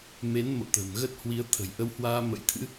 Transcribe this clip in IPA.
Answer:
me˨˦nmo̰˧˨ t̪ə̤ː˨˩mɣə˦˥t̚hwi˨˦ə̯ t̪ʰə̤˨˩jʔə˧whwaː˧ mə̰˧˥jt̪ʰɨ̰˧˥

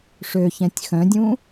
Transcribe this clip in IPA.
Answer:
ʂøçɛ̃tʲ xœ̃dʲũ

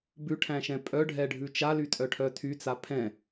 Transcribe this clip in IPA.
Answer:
bʉʈʰæ̃ʃɛ̃ pʼœɖʱɛɖʱʉ t͡ʃalytʼœʈʰœ tʰyt͡sa pʰɛ̃

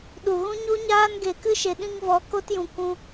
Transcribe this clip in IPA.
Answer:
ɗu˨ɣũ˦ɲu˦ɲaː˦n ɡe˨kɨ˦ʃe˨ɗĩ˧ŋ vɔ˨˦ko˦tjũ˨ kʷũ˧

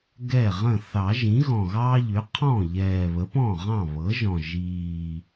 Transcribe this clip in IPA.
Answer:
ɡɛ˥˩ʁə̃˥˩ θɑ˨˩˦ʒĩ˩˥ ɣɔ̃˨˩ɣɑː˦ ʎʏ˩˥qʰɔ̃˥˩ʎɛː˨˩ βə˩˥pɔ̃˥˩ ʁɑ̃˥˩ βɤ˩˥ʒɔ̃˨˩ ʒiː˨˩

